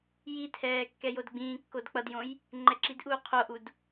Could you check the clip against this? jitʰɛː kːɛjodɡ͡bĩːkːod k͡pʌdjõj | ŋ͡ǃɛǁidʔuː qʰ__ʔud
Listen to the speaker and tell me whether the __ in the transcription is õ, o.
o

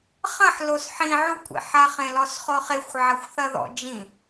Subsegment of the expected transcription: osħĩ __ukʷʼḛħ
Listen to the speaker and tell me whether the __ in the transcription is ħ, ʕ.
ʕ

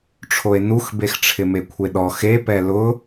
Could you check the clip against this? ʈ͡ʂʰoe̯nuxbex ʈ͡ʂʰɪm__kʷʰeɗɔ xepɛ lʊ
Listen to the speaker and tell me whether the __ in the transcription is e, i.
e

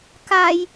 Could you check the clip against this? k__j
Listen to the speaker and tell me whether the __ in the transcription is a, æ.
a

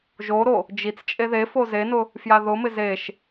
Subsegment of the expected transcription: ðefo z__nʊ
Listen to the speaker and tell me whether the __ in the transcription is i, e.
e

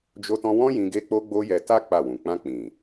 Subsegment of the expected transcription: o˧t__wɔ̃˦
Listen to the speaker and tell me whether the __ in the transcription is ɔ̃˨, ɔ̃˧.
ɔ̃˧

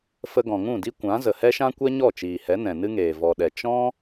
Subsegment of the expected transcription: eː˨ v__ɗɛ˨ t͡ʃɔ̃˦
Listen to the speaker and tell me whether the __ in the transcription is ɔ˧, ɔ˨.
ɔ˨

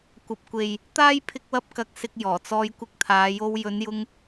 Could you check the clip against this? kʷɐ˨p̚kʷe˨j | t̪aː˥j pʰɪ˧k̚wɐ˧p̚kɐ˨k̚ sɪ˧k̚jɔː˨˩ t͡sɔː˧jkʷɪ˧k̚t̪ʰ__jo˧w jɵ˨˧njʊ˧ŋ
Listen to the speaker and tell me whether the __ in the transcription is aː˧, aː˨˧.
aː˨˧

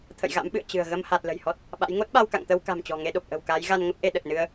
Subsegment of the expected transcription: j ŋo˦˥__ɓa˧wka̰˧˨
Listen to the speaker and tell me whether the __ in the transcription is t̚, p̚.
t̚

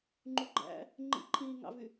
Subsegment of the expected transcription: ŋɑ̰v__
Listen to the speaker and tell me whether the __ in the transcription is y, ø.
y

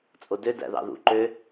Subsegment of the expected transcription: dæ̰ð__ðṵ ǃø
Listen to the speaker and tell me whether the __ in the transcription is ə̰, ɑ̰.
ɑ̰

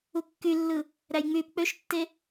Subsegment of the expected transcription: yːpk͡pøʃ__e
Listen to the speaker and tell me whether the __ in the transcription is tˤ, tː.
tː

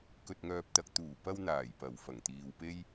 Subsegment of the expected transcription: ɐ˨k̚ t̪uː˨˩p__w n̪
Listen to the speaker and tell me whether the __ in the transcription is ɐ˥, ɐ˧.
ɐ˧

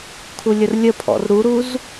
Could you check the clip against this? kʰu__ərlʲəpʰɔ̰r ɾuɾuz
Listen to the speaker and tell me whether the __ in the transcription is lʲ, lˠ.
lʲ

